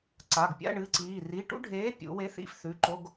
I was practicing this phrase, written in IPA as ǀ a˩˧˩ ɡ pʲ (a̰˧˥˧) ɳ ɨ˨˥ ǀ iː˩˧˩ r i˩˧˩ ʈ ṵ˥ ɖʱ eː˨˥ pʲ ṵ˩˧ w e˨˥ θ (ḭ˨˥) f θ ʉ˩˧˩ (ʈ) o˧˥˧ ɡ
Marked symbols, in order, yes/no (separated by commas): yes, yes, no